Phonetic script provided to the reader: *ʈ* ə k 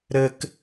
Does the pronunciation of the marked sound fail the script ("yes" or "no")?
yes